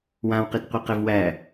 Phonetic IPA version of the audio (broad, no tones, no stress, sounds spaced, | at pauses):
w ã w q i t qʷ ɯ q ɛ v w æ